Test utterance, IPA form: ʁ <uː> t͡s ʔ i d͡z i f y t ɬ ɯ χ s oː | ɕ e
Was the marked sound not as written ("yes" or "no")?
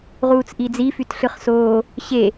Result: no